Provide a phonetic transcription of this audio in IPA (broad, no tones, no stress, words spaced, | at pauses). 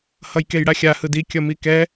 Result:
hʌjkejɽaxʲa hɯdi kʲʌmikɛ